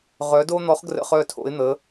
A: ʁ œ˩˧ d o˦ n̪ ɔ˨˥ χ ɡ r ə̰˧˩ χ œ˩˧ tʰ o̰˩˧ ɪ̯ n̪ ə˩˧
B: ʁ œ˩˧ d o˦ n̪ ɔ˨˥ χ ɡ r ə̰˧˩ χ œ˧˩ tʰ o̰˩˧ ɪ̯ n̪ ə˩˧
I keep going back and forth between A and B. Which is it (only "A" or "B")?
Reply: B